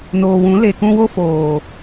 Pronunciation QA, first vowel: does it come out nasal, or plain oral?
oral